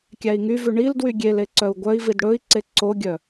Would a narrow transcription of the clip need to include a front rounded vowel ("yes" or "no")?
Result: yes